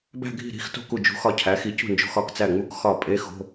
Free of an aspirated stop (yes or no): no